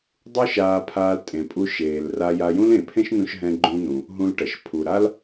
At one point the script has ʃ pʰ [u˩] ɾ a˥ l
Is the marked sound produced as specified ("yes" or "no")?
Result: yes